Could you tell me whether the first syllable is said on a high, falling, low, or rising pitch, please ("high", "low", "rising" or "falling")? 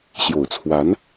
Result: low